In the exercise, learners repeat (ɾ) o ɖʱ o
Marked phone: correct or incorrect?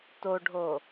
incorrect